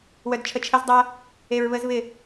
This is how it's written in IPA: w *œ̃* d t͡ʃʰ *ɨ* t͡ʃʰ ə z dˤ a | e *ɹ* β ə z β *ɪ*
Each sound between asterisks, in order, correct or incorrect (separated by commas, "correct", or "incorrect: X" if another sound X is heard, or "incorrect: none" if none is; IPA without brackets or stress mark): incorrect: œ, incorrect: ə, correct, correct